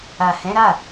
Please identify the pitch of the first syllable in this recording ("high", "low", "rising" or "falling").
low